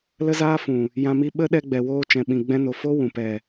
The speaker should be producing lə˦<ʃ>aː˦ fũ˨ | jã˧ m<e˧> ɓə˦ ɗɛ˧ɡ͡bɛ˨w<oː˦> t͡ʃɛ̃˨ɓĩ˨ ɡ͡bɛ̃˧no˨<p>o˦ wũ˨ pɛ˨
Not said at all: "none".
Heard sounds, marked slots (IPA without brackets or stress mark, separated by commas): z, i˧, oː˧, f